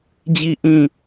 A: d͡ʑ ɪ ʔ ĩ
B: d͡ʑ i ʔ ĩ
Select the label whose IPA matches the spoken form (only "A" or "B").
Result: B